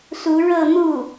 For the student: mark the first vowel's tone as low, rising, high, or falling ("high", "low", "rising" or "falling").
rising